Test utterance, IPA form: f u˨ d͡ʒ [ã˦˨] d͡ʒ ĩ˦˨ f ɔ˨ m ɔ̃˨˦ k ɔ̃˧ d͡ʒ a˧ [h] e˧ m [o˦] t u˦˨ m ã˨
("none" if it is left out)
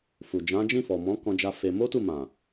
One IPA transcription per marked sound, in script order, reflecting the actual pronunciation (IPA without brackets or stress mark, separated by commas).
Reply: ã˨˦, f, o˦